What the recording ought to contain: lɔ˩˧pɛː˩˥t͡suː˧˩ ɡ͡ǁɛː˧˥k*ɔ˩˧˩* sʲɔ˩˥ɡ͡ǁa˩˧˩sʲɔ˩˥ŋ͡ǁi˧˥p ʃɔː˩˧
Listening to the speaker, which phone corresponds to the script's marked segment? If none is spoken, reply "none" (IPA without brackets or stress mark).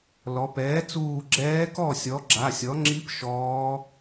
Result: ɔ˥˩